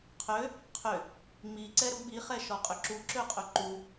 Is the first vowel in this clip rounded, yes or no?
yes